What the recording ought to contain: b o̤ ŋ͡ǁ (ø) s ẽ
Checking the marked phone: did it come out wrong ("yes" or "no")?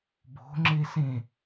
yes